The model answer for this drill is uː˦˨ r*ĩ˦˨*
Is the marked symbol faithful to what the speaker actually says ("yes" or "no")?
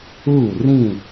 yes